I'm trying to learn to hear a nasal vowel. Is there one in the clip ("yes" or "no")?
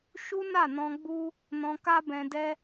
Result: yes